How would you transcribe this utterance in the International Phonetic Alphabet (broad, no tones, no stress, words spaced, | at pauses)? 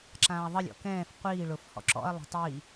ǁãːɐ̯ðˤəlʲɔ̰ kɛ̃ːf qʷiː ɭʊf hɔ̰ǁɔ̰ɐ̯lˠa̤ tˤi